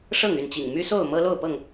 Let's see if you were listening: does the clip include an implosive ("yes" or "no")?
no